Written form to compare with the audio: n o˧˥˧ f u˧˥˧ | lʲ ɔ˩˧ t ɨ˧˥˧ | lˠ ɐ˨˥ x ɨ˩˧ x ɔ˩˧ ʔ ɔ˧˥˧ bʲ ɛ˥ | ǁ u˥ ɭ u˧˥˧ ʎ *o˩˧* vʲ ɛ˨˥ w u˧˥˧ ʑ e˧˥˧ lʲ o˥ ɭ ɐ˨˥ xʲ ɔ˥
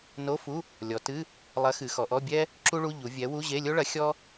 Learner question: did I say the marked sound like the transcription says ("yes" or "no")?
no